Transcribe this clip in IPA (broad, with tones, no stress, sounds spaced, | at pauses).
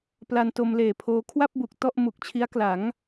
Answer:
p l a˧ n t o˧ m l eː˨˩ pʰ oː˧ kʰ w a˥˩ p̚ b u˨˩ k̚ t ɔ˥˩ ʔ m u˨˩ k̚ t͡ɕʰ i˦˥ a̯ k l a˩˦ ŋ